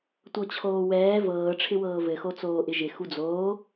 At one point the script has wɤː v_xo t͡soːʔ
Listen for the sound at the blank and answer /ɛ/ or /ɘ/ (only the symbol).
ɘ